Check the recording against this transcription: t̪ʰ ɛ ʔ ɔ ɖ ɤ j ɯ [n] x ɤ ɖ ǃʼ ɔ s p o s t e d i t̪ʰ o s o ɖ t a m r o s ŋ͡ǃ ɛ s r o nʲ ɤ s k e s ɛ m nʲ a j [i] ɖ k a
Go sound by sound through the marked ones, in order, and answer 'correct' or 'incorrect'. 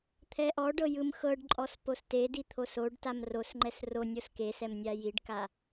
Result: incorrect, correct

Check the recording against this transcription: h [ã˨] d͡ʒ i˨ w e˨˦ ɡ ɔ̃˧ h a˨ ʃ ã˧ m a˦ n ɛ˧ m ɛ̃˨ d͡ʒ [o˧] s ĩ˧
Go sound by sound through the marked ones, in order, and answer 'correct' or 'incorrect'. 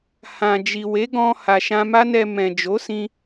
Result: correct, incorrect

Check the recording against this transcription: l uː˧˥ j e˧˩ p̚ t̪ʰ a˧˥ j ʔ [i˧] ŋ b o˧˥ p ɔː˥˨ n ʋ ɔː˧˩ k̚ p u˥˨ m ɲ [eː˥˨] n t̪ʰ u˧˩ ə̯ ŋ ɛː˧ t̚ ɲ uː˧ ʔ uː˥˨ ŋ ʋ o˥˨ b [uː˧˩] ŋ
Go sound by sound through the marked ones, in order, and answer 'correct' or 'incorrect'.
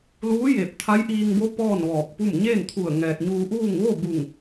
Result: incorrect, correct, incorrect

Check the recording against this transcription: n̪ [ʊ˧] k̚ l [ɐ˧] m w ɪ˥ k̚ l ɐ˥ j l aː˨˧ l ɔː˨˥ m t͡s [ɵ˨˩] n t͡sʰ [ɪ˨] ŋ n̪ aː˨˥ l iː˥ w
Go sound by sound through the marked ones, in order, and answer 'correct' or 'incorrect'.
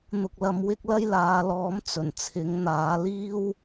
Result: correct, correct, correct, incorrect

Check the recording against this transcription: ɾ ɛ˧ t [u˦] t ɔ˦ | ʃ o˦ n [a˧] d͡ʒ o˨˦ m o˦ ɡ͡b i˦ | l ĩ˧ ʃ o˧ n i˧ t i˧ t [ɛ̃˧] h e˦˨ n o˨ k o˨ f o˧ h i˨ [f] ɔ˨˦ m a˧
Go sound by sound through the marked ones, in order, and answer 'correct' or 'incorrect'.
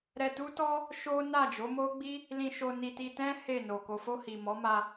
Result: correct, incorrect, incorrect, incorrect

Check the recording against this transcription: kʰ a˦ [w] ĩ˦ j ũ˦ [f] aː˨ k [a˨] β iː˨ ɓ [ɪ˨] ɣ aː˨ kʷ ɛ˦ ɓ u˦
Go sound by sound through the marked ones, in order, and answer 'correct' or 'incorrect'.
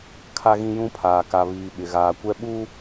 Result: incorrect, incorrect, correct, correct

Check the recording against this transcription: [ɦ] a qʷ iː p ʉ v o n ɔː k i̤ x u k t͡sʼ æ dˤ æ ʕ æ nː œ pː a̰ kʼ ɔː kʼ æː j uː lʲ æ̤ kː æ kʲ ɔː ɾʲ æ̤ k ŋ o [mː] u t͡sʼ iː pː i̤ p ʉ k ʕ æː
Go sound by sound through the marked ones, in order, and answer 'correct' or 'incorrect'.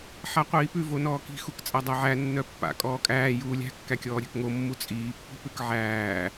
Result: incorrect, correct

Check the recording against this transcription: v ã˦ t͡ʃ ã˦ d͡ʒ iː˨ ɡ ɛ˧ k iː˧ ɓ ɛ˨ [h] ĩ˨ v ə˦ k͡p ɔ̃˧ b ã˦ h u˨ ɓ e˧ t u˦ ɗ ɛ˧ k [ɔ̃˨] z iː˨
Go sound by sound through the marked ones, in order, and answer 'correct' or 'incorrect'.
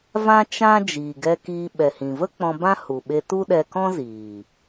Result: correct, incorrect

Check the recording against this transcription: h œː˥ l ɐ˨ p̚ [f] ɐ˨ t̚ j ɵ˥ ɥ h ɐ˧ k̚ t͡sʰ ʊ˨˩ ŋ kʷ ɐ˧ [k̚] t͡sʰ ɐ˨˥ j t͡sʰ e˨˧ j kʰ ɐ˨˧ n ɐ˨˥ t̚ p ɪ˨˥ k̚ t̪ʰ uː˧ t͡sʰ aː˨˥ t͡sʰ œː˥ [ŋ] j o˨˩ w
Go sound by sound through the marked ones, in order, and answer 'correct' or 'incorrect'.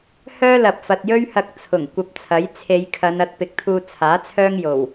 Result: correct, incorrect, correct

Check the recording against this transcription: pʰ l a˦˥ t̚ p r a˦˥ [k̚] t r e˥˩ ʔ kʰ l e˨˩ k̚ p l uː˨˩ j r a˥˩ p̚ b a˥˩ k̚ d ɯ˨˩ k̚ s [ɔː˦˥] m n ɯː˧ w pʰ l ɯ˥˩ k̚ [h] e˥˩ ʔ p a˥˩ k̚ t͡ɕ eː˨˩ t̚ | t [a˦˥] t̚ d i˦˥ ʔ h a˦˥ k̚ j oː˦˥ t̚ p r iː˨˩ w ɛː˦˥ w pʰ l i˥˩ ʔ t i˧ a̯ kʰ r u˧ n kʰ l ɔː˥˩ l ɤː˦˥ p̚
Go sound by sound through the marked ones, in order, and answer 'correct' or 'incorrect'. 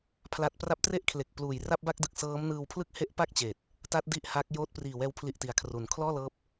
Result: incorrect, incorrect, correct, correct

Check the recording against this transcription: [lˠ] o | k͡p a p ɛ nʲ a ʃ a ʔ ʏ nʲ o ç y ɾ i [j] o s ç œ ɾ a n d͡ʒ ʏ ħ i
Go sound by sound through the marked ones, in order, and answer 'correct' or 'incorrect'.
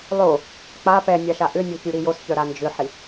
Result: correct, correct

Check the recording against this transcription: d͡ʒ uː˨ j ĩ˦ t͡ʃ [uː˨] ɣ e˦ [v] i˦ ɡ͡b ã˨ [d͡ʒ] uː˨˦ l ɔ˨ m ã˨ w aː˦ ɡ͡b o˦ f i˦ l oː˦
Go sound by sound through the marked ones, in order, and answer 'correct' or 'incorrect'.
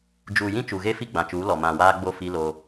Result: incorrect, incorrect, incorrect

